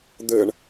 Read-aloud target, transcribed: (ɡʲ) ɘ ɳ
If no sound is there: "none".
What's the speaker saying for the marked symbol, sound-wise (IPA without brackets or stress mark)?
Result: d̪